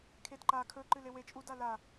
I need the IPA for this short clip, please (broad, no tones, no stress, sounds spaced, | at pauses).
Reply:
kʰ e d ǃ a kʰ ɵ ǃ ɨ l e w e t͡ʃʼ u d a l a